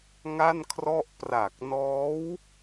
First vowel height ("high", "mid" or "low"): low